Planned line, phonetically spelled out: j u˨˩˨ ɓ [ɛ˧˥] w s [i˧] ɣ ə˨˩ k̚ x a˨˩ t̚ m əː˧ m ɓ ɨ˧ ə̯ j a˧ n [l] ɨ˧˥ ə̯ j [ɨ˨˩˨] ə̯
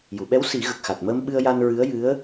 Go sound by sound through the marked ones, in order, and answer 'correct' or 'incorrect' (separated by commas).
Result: correct, incorrect, incorrect, incorrect